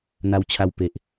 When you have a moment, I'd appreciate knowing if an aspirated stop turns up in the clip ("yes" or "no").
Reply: yes